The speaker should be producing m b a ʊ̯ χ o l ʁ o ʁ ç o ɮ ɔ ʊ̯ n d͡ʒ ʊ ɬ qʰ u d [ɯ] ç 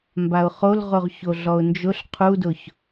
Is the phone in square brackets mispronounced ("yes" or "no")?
yes